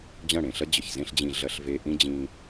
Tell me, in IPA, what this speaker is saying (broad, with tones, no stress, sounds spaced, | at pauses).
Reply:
d͡ʑ ɐ̃˦˨ ɽ ẽ˨ ɬ ɐ˦ d͡ʑ ə˨ ç z ẽ˦ ɬ d͡ʑ ĩ˧ ɮ ɐ˧ ɬ v e˧ ʔ ĩ˦ d͡ʑ ĩ˧